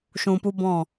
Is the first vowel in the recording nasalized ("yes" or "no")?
yes